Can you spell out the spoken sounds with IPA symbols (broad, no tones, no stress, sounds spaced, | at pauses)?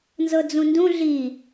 n z ɤ d͡z ũ n d ũ ɮ i